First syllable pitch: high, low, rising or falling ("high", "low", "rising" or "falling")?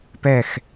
falling